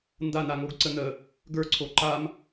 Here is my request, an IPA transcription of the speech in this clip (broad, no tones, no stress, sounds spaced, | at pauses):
n d a n a ŋ o ɡ ǀ ə n ə | ɡ ə˞ ǀʰ o ǃ a m